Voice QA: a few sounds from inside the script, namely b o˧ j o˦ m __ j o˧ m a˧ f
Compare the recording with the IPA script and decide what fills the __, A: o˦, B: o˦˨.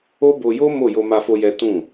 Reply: B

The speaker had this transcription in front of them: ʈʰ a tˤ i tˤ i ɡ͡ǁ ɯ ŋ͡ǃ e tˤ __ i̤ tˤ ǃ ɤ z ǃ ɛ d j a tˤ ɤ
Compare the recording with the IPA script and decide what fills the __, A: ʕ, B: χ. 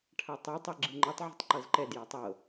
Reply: A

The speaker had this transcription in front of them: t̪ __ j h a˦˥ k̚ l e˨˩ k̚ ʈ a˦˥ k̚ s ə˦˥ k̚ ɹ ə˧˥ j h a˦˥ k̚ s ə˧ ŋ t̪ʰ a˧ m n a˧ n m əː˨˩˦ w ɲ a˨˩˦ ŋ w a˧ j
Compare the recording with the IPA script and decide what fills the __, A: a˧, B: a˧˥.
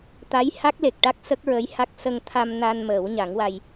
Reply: B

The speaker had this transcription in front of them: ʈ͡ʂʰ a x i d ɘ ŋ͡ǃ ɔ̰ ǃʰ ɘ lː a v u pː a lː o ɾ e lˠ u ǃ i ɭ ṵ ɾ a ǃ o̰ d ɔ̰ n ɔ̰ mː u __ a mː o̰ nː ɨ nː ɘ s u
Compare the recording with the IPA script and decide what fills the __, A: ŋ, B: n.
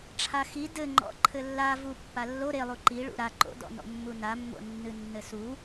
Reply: B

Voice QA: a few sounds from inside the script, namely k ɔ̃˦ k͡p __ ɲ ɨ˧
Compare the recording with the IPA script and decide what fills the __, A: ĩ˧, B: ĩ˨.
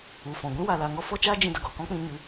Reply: A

